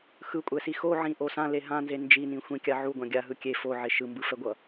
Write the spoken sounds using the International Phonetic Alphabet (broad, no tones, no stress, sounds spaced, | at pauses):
x ɯ kʷʼ ɛ s i x o ʕ ĩ ʔ o s ã l e ɦ ã n z e n d͡ʒ i n ĩ xʷ ĩ kʲ a ʕ u ɡʷ ã ɡʲ a ɦ ɯ kʲ e f o ʕ e ʃ ɯ m b ɯ f ɛ ɡʷ ʌ